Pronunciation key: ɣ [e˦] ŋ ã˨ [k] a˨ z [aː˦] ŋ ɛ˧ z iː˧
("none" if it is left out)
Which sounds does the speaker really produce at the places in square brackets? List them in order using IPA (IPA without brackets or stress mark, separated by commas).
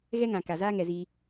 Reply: ɛ˦, k, aː˦